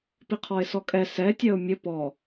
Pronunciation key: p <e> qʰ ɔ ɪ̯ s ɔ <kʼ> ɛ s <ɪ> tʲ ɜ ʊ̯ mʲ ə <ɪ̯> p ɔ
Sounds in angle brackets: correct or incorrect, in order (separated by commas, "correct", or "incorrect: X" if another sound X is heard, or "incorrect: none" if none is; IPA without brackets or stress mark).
incorrect: i, correct, incorrect: ɛ, incorrect: none